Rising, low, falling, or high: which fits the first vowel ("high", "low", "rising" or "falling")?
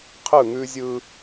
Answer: falling